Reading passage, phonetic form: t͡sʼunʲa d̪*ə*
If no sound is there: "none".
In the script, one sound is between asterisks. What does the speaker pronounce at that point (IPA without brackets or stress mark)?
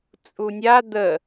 ə